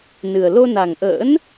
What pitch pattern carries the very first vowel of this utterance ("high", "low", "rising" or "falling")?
low